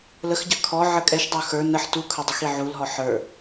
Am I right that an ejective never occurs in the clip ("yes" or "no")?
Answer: no